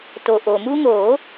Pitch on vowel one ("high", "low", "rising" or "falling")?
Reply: low